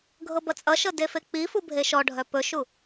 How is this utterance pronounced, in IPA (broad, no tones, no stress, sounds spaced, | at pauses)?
ɡʱ ɤ b ʌ t͡sʼ ʌ ʃ ɤ d e f e k͡p i f u bʱ e ʃ ɔ ɖʱ œ p ɵ ʃ u